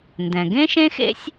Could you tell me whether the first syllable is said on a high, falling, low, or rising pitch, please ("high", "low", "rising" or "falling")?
low